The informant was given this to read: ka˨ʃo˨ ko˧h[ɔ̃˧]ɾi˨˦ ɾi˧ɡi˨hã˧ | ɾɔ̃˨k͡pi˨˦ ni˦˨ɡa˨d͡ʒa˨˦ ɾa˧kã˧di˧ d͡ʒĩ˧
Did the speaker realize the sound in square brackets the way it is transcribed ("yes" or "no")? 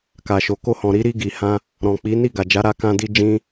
no